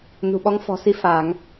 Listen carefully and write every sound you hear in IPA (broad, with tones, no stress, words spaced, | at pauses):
nṳ˨˩ɓɔ˨˦ŋ fɔ̤˨˩ si˧ faː˧˩˨ŋ